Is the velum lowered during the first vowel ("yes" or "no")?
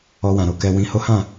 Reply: no